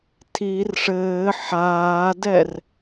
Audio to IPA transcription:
tʰir ʂɘː ħaːdɛr

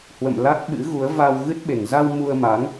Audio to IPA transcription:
hwə̰˧˨m la˦˥t̚ɓɨ̰˧˥ɣu˨˦ə̯ va˧w ɣɨ˦˥t̚ɓe˨˩ŋ za˧w mu˧ə̯ma˨˦ŋ

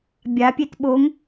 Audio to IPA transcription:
bʲapʲet ɓoŋ

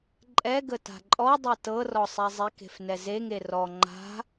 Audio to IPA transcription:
ǃʼɛɡə ta̤ǃʼɔdˤɛ tɤrɔ sˤɛzˤeke̤f nɛzeŋe rɔ ŋ͡ǃa̤

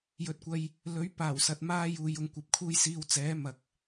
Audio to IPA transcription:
jɵ˧t̚kʷɐ˧j | lɵ˨˥ɥ paː˨˩wsɐ˨t̚maː˧ juː˨jʊ˨ŋkʷɐ˨p̚kʰuː˧j siː˧w t͡sɛː˨˥ mɐ˨k̚

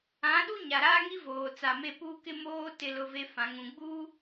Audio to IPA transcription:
ã˨˦ɗu˦ ɲa˨ɾaː˦ŋi˦voː˨ t͡sa˨me˦˨puː˦ kɪ˦moː˦ tɪ˦lʊ˦ve˦ fã˨ ŋũ˨ɡ͡buː˦

